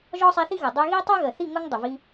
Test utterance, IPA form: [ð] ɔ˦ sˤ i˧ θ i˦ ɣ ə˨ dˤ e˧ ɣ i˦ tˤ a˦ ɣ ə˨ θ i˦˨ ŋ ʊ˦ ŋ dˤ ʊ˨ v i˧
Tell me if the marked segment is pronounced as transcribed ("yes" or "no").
no